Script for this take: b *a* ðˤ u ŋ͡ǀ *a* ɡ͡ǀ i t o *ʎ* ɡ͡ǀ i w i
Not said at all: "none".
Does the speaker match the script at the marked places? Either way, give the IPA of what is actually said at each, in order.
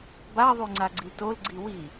a, a, l

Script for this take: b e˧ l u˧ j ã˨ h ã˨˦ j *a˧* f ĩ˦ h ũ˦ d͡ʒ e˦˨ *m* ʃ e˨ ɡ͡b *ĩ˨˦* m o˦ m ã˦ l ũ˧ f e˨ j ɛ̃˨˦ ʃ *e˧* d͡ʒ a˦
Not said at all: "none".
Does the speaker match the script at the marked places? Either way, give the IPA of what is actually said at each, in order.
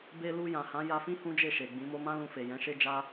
a˧, none, ĩ˨˦, e˦

